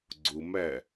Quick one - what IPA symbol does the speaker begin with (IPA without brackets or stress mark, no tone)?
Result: ɡ͡ǀ